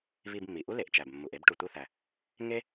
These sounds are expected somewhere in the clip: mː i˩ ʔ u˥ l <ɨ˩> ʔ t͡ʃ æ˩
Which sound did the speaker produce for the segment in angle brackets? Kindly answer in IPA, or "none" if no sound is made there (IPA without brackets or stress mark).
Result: e˩